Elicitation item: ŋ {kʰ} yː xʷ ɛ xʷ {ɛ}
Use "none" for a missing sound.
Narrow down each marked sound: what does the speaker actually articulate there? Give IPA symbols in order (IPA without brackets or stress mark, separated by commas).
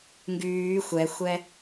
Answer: ɡ, ɛ